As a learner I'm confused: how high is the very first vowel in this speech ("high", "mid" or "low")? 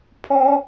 mid